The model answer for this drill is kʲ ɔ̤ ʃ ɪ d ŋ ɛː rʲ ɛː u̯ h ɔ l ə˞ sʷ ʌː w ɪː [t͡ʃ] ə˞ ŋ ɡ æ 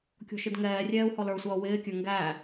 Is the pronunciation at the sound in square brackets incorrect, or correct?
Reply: incorrect